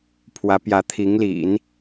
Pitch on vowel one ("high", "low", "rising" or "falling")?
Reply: rising